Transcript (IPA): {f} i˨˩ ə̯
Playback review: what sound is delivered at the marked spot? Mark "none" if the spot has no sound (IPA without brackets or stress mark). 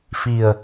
f